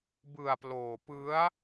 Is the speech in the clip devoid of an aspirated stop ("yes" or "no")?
yes